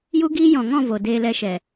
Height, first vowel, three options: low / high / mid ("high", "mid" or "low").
high